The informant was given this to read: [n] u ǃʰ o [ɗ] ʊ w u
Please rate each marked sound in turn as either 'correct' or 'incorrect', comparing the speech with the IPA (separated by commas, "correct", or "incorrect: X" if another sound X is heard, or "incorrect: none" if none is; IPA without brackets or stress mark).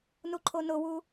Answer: correct, incorrect: n